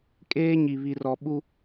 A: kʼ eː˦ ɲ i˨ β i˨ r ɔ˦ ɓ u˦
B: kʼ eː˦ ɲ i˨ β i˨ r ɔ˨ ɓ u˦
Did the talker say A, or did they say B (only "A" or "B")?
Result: B